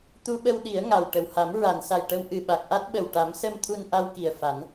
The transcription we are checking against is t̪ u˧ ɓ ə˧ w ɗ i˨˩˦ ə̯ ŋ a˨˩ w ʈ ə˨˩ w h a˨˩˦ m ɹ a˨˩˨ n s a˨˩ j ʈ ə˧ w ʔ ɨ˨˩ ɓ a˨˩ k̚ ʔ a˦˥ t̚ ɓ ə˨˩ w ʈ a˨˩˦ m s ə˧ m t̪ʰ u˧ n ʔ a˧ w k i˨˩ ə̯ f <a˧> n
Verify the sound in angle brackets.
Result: incorrect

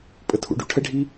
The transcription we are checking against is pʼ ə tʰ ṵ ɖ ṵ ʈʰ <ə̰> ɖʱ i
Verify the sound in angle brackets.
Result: incorrect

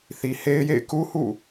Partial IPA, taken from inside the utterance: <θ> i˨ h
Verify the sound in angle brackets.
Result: correct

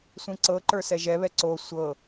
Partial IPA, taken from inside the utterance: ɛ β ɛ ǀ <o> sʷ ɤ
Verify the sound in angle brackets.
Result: correct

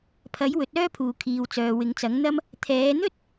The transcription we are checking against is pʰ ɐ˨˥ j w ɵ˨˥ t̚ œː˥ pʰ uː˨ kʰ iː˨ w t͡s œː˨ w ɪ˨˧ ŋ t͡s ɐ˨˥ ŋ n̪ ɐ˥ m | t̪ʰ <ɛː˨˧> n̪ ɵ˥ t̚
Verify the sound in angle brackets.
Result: correct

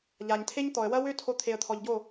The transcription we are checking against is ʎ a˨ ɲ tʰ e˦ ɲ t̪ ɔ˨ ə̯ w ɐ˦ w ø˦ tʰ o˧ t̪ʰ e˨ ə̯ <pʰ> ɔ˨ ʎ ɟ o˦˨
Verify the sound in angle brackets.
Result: incorrect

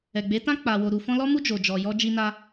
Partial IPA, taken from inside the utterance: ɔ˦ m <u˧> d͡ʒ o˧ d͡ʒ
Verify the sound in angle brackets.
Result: incorrect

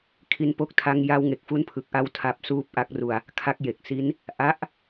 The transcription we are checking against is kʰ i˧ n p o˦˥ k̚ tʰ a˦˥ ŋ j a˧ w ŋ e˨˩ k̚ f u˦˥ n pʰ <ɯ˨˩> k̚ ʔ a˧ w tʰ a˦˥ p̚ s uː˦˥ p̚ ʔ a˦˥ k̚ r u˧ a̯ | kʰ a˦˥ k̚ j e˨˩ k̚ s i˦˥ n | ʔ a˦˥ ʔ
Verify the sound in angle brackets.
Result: correct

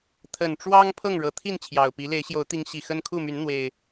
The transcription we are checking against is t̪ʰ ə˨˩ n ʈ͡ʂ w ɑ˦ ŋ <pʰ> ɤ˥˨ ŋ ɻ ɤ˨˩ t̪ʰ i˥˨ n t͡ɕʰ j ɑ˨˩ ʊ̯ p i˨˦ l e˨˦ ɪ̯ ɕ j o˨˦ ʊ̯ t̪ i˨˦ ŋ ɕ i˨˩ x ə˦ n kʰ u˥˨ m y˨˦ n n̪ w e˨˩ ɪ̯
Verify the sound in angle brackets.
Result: correct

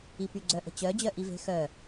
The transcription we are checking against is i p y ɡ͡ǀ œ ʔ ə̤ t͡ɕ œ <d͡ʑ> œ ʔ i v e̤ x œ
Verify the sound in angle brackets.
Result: correct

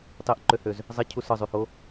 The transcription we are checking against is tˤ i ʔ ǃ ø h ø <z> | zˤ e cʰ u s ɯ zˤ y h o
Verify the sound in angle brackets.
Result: correct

